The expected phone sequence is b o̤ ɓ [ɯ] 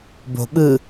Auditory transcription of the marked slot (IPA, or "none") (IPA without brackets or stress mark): ɯ